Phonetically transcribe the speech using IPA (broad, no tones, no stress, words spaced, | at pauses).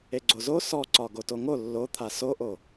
eɡ͡ǀozo sɔǀɒ ɡotoŋo lːot̪ʰa soʔo